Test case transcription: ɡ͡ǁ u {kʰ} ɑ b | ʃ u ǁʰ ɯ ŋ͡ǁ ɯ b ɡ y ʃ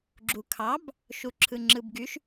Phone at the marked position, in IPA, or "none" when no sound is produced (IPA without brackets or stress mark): kʰ